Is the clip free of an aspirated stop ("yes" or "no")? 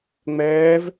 yes